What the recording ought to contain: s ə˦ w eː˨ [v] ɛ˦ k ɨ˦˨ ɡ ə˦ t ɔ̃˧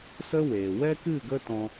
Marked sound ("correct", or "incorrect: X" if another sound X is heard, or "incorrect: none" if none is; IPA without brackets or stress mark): incorrect: w